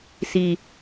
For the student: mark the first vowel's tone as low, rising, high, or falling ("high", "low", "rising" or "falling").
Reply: low